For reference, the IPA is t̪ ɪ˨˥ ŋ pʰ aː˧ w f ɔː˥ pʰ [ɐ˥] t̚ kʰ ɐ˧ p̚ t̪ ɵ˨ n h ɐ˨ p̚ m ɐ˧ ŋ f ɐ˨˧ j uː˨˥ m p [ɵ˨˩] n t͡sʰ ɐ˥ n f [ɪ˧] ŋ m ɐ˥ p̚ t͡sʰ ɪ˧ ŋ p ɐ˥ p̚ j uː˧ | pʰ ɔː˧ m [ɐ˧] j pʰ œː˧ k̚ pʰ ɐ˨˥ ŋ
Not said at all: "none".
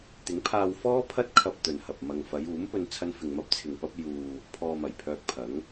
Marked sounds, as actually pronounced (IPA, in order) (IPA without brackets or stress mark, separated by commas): ɐ˥, ɵ˧, ɪ˧, ɐ˨˩